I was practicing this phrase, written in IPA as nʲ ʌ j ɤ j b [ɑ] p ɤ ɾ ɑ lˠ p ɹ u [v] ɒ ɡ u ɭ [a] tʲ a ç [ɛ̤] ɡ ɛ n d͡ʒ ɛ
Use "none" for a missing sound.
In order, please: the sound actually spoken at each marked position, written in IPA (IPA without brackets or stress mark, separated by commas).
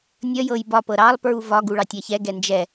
ɒ, v, ɑ, ɛ